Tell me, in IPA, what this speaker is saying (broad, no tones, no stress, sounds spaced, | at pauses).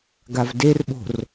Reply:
ɡ a v d e r ɓ o̤ r